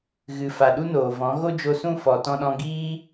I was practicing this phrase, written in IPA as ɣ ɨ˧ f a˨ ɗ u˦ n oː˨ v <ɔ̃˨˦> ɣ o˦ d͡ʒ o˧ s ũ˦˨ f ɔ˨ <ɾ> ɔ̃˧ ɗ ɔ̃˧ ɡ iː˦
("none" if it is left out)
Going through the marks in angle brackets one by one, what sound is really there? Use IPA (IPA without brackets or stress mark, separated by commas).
ɔ̃˨˦, t